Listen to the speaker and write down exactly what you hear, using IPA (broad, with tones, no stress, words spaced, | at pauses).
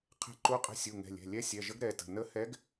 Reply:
qʰɛ̤˧˥ǃu˧˥qʼə̤˧˥ sʲu˩˧˩ŋɛ̤˩˧˩lʲɛ̤˩˧˩ lʲɛ˧˥sʲɛ˩˧˩ʒə˧˥ɡ ɾɛ˩˧˩tə̤˩˧˩ nə˧˥hɛ˧˥ɡ